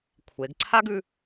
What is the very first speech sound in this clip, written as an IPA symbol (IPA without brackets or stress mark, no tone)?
kʷʰ